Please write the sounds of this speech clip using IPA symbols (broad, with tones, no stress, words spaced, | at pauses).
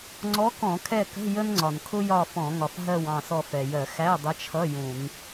ŋ͡ǀɔ˧˥kɔ̃˧˩˧kʰɛ˦˨kə̤˧˥˧ jə˥nŋ͡ǀɒ˩nkʰʊ˥jɒ˦˨ fɔ̃˧˩˧ ŋɒ˩fɦɜ˦˨w ɑ̃˦˨sɔ˦˨fɛ˩jɜ˧˩˧ xæ˧˥˧dˤə˧˥t͡ʃʰʌ˧˥˧ jũ˧˩˧n